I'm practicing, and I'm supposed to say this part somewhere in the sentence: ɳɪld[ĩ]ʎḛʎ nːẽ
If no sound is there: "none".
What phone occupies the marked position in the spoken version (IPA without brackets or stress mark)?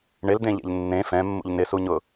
ẽ